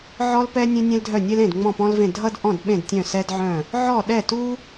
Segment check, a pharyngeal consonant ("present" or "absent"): present